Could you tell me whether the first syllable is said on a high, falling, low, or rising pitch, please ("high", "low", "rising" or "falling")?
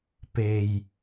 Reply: low